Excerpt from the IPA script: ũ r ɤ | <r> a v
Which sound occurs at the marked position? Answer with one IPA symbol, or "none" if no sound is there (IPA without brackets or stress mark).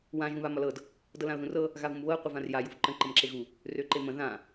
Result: ɣ